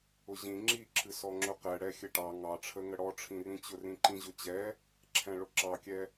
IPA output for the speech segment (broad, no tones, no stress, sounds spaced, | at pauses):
ʊ ʑ ĩ ŋ͡ǁ i ǁʰ ɨ s ɔ ŋ͡ǁ ʊ q ɛ ɽ ɛ xʲ ɘ ʈ ɑ ŋ ɑ ʈ͡ʂʰ ə ŋ ə ɽ ɔ ʈ͡ʂʰ ĩ r ĩ t͡ɕ ʊ r ĩ ǃ ĩ ʑ ʊ t͡ɕ ɛ | ǁʰ ɛ̃ ɭ ʊ ǁ ɑ kʲ ɛ